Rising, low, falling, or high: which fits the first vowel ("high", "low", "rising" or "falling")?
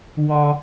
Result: high